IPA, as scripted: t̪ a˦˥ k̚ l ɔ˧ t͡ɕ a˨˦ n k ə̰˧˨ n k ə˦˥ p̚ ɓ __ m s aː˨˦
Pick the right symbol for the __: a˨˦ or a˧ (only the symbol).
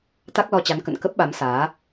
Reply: a˨˦